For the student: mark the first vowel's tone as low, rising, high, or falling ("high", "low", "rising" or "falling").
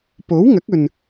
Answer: rising